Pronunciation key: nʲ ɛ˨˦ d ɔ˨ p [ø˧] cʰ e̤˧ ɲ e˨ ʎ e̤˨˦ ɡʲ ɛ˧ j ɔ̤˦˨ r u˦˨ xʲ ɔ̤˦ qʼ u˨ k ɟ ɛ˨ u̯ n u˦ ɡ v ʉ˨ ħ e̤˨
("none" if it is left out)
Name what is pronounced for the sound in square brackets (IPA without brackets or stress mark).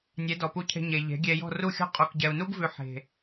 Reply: u˧